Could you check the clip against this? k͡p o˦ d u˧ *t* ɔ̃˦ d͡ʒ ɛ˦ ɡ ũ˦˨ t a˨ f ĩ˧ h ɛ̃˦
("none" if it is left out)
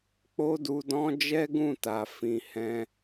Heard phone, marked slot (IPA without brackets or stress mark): d